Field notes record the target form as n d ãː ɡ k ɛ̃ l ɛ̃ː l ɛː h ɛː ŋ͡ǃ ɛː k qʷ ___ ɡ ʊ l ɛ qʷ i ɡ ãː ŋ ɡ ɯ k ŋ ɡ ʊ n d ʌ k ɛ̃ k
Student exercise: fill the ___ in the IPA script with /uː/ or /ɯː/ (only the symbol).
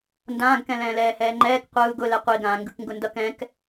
ɯː